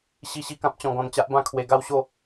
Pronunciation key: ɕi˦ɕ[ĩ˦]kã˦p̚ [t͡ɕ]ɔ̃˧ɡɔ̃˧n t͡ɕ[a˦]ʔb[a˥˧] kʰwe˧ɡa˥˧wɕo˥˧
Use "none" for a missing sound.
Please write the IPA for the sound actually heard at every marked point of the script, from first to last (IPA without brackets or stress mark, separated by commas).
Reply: i˦, t͡ɕ, a˦, ã˥˧